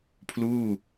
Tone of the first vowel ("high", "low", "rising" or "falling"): falling